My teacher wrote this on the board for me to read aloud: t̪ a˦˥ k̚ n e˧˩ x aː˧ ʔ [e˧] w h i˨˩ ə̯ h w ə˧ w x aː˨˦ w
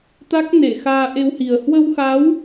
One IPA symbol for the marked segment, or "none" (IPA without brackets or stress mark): e˧